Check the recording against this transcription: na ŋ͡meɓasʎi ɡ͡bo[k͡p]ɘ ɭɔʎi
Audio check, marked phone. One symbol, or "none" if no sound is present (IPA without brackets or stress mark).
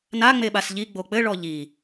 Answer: k͡p